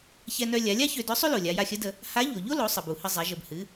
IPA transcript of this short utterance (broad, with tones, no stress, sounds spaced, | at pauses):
ç ɛ˧ n œ˧ lʲ a˩˧ lʲ a˥ ç ø˧ d œ˧˥ sˤ ø˥ l o˩ lʲ a˩˧ j a˧ xʲ ə˧˥ d ə˧ | h a˧˥ ʎ o˩ ʎ o˥ l o˩˧ sˤ ə˩ b u˩ h ə˧ zˤ ɛ˩˧ ʒ ə˩ b h ɨ˩˧